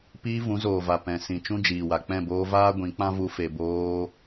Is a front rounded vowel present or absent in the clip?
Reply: absent